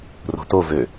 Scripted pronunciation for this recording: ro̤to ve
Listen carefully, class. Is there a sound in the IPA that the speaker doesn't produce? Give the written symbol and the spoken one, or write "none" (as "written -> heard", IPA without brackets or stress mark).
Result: e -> ø